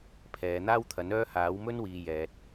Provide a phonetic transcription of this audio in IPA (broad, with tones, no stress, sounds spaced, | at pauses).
pʰ ɛː˨˧ n̪ aː˥ w t̪ʰ ɐ˨˥ n œː˥ h aː˨˥ w m ɵ˥ n w iː˨ j ɛː˨ t̚